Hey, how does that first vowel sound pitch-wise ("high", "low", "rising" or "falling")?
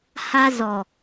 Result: high